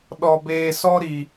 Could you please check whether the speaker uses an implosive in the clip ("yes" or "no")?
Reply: yes